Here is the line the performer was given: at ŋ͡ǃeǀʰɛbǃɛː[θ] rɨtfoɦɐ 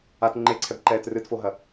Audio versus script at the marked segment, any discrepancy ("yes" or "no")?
yes